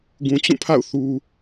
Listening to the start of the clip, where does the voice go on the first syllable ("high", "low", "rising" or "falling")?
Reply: low